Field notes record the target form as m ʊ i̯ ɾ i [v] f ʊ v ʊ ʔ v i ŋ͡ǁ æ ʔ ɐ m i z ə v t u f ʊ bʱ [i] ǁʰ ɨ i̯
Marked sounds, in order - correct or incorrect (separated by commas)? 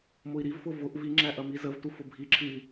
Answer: correct, correct